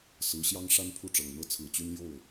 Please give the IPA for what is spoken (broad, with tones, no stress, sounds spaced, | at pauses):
s ɹ̩˧˥ ɕ j ɑ˥ ŋ ʂ a˥ n pʰ u˥˩ ʈ͡ʂ ɤ˨˩ ŋ n̪ ɤ˥˩ t͡sʰ ɹ̩˨˩ t͡ɕ y˥ n j o˥˩ ʊ̯